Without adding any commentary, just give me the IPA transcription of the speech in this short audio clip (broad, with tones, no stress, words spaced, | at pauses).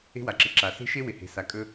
e̤˦wa˨ǁɪ˨ ǁa˨ se̤˦ʃe˦ wɪ˨he̤˨ sa˨kʼɵ˧